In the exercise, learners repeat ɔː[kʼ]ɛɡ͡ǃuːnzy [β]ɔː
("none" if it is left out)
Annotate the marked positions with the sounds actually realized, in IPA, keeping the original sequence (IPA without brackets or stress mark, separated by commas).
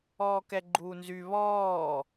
k, β